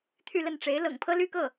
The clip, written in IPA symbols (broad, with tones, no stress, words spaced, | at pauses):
t̪ʰy˥˧lə˥˩nʈ͡ʂe˧˥ɪ̯ lɤ̰˨˩ŋpʰɤ˥ly˥kɤ˥˩